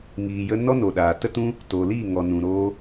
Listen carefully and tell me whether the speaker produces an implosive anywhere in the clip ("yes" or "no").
yes